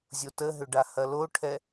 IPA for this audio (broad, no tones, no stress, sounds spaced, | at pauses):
zʲ o t ə ɦ ʏ ɖ a h ɐ l o ʈʰ ɛ